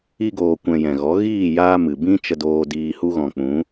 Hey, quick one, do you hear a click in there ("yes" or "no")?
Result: no